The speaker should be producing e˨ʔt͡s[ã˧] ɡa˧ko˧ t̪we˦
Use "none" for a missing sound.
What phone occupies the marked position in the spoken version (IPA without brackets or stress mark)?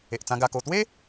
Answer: ã˧